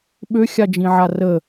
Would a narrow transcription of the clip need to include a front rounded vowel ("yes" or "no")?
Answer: yes